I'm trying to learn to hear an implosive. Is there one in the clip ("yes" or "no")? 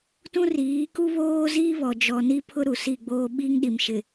yes